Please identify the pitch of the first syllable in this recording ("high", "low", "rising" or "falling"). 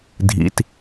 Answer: low